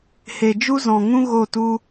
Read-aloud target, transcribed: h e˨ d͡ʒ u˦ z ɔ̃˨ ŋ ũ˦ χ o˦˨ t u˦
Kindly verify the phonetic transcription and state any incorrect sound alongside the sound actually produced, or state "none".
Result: χ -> ɣ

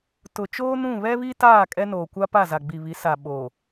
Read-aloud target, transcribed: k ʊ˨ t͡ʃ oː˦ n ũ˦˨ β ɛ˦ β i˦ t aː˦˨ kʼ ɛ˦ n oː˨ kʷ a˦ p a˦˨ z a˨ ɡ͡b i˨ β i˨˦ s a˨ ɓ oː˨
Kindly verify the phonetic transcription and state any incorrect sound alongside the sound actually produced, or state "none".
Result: k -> t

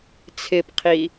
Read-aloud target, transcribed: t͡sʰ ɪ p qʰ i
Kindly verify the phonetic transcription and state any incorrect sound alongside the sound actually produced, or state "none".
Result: none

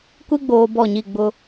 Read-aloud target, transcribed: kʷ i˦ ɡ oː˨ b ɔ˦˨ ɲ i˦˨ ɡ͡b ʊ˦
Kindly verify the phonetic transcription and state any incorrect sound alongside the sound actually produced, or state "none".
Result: ɡ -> ɡ͡b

